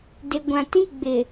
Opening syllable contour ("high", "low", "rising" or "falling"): low